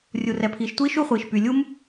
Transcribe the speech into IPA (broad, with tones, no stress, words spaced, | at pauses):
rʲu˩rɛ˩pʰiː˩ʃtʷiː˥ ʃu˥χʷiː˩ʃ py˩lʲu˥m